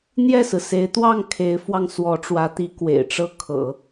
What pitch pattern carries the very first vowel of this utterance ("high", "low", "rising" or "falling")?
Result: falling